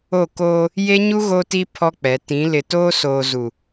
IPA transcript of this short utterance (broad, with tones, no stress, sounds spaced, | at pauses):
o˦˨ k oː˦ | j e˦ ɲ u˦ ɣ o˦ t i˦ pʰ ɔ˦ k͡p ɛ˨˦ t ĩ˨˦ l ɪ˨ t oː˦ s oː˨ z u˨